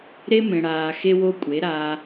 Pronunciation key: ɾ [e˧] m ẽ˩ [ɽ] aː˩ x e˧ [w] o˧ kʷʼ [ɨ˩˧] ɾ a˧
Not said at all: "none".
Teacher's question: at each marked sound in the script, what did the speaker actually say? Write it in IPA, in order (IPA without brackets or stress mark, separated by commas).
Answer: e˧, ɽ, w, e˩˧